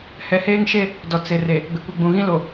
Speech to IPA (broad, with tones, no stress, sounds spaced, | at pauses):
h ɛ˨ h eː˦ ŋ ʃ e˦˨ | d ɔ˨ t͡s ɪ˨ r e˨ | ɡ͡b ɪ˨ kʷ i˨ ɡ͡b ũ˨ ɣ ĩ˦ l o˨